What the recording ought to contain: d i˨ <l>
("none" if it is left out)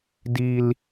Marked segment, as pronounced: l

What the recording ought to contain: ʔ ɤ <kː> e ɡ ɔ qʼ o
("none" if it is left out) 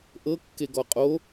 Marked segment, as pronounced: kː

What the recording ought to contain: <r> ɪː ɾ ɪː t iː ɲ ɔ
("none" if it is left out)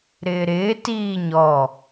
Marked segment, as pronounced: ɾ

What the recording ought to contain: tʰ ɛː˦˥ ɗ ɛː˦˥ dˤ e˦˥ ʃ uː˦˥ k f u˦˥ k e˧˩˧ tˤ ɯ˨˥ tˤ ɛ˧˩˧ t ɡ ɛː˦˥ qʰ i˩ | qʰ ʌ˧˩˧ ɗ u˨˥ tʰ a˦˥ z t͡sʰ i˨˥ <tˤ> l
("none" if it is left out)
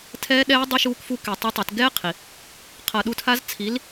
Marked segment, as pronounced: none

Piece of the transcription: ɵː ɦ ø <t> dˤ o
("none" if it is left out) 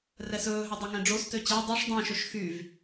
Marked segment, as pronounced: none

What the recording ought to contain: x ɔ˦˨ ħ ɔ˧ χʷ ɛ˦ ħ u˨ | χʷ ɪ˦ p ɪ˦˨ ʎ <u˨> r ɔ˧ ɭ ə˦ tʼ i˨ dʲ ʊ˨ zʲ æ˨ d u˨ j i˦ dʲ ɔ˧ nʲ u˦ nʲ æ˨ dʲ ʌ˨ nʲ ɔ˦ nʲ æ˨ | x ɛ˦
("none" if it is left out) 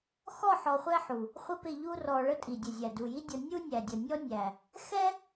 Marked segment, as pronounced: u˦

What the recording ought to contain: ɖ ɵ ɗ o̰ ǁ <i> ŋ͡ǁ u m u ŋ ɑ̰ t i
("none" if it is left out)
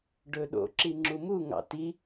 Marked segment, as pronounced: i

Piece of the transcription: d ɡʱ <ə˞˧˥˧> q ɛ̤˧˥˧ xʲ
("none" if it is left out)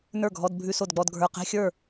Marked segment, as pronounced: ə˞˧˥˧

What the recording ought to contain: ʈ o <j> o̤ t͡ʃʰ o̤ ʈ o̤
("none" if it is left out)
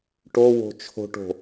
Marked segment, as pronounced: w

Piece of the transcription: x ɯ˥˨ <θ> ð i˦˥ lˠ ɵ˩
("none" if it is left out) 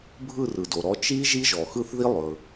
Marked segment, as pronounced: θ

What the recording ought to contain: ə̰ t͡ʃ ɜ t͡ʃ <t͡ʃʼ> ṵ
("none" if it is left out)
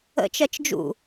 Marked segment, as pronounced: d͡ʒ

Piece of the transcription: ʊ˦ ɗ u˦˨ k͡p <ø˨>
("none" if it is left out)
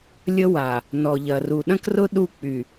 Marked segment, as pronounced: y˨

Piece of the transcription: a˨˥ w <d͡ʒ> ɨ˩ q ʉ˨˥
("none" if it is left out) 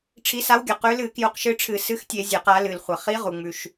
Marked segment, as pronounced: ɡʲ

